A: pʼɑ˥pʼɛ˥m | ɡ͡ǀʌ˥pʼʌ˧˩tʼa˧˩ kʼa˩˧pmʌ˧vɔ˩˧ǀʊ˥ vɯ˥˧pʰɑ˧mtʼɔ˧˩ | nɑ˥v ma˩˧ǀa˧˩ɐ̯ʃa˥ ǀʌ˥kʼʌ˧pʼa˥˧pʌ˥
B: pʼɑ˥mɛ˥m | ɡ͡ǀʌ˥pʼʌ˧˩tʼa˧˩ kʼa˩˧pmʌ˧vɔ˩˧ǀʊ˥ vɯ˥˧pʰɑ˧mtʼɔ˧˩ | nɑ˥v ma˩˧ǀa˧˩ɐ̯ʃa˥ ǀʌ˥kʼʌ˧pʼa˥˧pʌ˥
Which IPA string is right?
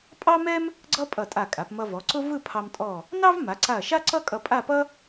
B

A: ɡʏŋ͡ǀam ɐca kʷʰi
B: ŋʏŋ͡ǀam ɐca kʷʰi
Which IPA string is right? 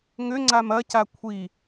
B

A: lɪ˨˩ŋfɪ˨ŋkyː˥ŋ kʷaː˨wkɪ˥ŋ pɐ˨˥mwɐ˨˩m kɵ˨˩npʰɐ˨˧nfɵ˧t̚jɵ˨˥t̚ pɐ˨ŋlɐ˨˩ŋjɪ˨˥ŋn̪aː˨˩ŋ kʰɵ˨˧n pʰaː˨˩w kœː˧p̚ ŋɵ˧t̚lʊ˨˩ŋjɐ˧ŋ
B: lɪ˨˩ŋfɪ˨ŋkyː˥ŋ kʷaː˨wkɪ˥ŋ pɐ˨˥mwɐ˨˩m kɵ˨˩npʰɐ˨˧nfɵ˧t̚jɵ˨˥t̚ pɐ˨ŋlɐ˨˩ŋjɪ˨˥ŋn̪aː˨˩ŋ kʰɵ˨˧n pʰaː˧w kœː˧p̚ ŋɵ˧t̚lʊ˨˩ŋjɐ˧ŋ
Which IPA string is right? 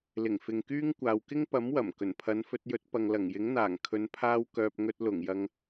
B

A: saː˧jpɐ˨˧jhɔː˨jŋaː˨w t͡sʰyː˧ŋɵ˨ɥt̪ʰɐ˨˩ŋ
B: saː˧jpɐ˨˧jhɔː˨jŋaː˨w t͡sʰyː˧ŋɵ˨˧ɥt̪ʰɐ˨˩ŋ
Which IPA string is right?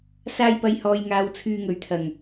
A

